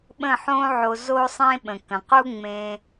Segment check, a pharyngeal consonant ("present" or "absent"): present